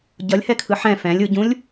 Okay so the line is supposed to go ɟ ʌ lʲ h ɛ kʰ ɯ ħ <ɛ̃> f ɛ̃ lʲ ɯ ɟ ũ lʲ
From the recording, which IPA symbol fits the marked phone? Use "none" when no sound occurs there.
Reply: ɛ̃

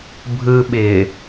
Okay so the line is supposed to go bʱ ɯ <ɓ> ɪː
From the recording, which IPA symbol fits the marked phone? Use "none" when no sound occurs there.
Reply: ɓ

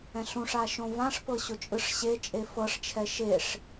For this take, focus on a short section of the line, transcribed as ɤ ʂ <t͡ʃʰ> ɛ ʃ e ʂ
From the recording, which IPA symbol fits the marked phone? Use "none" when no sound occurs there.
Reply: t͡ʃʰ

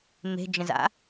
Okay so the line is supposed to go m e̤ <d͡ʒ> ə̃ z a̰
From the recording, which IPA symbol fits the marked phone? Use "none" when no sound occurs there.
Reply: d͡ʒ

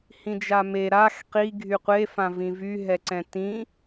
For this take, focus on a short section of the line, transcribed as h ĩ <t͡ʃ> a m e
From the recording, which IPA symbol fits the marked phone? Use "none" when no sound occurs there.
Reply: d͡ʒ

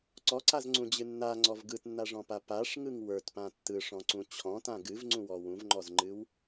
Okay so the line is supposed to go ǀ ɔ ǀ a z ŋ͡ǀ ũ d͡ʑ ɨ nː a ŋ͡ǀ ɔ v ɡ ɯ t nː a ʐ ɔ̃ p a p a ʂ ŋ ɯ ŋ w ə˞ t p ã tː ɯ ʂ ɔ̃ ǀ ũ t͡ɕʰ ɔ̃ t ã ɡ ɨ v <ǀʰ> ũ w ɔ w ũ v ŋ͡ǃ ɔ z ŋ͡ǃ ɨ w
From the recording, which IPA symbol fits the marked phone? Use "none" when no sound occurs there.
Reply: ŋ͡ǀ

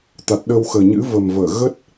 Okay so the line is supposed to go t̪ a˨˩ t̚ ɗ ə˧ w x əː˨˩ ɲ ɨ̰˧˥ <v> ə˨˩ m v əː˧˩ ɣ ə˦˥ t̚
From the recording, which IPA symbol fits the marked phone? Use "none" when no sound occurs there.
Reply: v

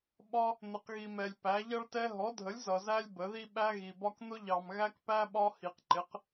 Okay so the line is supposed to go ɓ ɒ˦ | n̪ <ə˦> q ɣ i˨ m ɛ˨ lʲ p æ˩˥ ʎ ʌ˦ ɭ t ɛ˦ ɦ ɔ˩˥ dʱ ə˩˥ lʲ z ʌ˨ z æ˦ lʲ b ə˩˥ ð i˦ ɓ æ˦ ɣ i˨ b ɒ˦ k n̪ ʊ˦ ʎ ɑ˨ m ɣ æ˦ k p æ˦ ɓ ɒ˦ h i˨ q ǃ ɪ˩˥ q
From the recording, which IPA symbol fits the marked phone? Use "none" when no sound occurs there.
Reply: ə˨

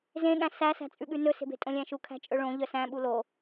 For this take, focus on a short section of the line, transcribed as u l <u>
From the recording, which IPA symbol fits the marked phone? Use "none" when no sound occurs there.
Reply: o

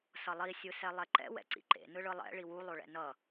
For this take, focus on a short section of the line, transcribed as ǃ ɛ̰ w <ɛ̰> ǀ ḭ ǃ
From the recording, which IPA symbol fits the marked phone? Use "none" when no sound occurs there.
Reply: ɛ̰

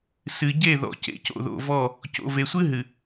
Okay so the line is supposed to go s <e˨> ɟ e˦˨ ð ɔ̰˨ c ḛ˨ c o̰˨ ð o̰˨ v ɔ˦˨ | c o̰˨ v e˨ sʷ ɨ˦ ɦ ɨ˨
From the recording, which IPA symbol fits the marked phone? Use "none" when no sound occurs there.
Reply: ɨ˨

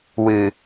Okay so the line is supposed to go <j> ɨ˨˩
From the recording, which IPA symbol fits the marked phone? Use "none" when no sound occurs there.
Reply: w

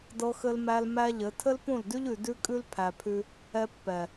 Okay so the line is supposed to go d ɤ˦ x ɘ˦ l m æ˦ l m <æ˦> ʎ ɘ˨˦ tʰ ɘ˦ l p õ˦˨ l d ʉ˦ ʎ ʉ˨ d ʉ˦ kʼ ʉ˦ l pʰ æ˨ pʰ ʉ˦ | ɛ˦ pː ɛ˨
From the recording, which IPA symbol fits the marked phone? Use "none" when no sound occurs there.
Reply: æ˦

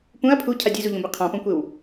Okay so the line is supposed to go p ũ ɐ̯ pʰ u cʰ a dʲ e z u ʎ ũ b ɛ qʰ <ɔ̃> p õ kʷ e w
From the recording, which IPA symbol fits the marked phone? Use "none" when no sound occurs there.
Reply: ɔ̃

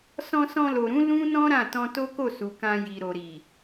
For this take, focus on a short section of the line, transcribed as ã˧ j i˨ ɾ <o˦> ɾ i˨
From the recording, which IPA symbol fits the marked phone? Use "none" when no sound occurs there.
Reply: o˨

